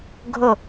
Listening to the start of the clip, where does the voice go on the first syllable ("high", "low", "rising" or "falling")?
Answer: falling